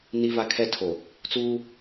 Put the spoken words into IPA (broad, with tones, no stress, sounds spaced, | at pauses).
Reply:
n i˦ v a˦ kʰ ɛ˦ tʰ o˨ | t͡s uː˦